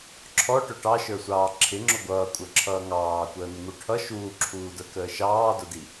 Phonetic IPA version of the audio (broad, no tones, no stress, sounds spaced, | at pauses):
ǁʰ ɔ ʈ ʊ ʈ ɑ ʃ ə˞ sʷ ɑː ǁʰ ɪ ŋ͡ǁ ʊ ɡʷ ʌː kʷʼ ə˞ ǁʰ ʌː ŋ ɑː kʷ əː n ɪ ŋ u ʈʰ ʌ ʃ uː ǁʰ uː d ə˞ k əː ʃ ɑː d ʊ d i